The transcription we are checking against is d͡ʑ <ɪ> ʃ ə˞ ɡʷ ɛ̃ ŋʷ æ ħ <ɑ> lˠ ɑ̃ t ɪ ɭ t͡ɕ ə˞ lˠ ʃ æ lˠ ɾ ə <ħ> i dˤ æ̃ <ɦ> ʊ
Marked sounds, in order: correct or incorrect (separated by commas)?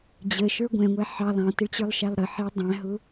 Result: incorrect, correct, correct, correct